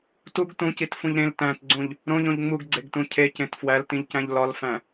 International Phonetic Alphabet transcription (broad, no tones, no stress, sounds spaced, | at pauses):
t u ɡ t ũ c i t f ũ ʎ ɾ ẽ l t æ̃ t ɡ͡ǀ ũ ʎ | ɾ õ ʎ õ ʎ ŋ͡m u ɡ ɡ͡ǀ e ɡ t ũ cʰ e c ẽ t f w æ l t ĩ ʎ c æ̃ ʎ l ɒ l f æ̃